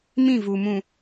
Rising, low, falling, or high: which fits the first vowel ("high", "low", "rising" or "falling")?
falling